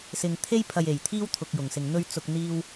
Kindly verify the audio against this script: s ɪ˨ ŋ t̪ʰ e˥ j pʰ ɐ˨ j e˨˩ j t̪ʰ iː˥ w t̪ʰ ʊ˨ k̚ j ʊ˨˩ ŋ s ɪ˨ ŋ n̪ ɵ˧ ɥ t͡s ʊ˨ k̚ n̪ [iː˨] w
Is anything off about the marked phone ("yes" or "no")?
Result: yes